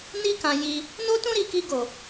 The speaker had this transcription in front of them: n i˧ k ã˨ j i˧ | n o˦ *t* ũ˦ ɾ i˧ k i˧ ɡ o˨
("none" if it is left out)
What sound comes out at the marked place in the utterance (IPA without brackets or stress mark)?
t